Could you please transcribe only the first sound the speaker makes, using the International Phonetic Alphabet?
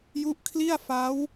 j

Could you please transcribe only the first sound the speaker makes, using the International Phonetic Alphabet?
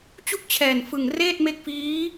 t͡ɕ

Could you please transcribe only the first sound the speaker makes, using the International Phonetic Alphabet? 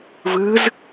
v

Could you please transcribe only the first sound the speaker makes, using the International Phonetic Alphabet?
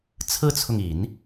t͡sʰ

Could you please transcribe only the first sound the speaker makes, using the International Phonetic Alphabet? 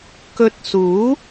k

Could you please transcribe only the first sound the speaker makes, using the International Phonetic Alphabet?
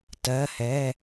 t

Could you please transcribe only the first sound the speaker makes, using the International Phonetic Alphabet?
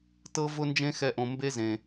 t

